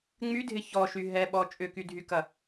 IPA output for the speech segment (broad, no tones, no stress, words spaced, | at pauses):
ŋ͡mydʱɪ çɔʃy ɦɛɓɔ t͡ʃʼʏkydʱykɐ